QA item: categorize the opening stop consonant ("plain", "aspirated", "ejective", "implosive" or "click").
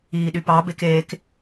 implosive